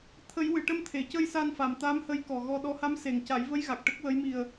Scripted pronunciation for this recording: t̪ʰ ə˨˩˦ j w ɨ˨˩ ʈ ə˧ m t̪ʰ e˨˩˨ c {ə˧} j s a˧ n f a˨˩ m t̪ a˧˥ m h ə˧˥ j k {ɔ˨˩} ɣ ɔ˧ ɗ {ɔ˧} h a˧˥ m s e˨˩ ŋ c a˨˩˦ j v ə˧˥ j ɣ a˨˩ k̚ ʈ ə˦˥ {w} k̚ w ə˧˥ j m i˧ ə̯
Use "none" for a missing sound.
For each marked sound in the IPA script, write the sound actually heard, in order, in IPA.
ə˧, ɔ˨˩, ɔ˧˥, none

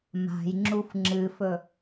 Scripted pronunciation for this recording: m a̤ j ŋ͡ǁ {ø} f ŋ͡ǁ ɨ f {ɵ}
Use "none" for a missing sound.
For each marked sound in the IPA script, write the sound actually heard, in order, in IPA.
u, ɵ

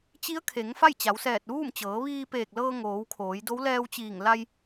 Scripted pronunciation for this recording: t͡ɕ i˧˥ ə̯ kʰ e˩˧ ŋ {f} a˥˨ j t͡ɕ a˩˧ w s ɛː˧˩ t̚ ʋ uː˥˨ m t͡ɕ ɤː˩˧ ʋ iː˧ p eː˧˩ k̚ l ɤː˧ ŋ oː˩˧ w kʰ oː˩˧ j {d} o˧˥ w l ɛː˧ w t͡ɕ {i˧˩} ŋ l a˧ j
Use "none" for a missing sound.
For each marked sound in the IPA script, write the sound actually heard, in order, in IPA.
f, d, iː˧˩

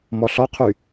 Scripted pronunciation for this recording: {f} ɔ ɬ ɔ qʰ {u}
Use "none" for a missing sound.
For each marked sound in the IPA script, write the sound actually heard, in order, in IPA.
m, y

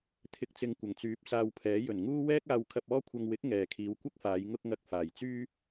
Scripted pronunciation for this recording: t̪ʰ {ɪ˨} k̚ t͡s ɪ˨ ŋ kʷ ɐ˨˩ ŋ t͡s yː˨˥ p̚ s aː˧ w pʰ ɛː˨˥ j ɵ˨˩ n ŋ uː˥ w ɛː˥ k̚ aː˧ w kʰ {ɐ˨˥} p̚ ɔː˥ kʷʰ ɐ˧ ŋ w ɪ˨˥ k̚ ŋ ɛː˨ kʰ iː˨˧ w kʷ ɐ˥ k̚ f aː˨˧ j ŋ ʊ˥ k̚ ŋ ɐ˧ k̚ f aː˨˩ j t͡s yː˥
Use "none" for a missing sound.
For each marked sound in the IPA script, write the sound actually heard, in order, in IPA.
ɪ˨, ɐ˧

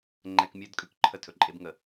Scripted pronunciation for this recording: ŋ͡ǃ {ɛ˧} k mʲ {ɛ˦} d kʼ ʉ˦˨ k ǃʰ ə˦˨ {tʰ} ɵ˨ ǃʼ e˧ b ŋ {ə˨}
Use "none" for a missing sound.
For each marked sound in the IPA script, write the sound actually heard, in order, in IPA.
ɛ˧, ɜ˦, tʰ, ə˨

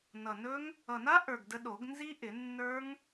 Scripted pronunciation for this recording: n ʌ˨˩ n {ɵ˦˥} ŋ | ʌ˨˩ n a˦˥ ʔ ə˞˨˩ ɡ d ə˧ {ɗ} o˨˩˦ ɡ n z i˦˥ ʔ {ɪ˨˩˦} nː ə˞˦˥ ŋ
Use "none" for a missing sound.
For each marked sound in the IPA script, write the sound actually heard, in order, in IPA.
ɵ˦˥, ɗ, ɪ˨˩˦

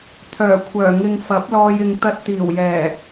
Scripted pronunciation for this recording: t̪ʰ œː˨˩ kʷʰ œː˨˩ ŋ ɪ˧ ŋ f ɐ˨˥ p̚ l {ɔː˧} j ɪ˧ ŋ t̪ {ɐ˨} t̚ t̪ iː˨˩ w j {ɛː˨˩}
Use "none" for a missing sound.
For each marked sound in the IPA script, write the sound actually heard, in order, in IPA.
ɔː˧, ɐ˧, ɛː˨˩

